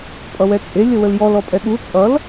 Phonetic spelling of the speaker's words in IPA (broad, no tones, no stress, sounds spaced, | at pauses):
pʼ ʌ w ɛ t͡sʼ e lʲ ə w ə l j ɔ l ɔ pʼ ɛ ɠ u t͡sʼ ʌ l